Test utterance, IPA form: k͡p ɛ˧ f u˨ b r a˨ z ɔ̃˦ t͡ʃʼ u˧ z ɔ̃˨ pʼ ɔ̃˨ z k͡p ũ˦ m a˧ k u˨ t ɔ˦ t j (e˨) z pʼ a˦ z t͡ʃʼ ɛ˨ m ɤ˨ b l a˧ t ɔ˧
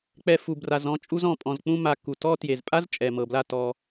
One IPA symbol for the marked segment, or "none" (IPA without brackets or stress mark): e˨